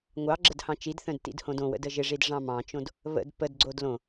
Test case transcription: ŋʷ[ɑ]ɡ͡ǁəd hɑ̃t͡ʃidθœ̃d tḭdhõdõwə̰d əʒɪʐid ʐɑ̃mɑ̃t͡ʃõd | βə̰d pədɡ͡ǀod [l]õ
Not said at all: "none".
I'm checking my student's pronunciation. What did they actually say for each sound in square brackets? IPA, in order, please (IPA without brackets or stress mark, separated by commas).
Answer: ɑ, l